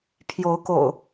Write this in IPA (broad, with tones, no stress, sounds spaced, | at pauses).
pʰ j o˨˦ ʊ̯ k o̰˨˩ ʊ̯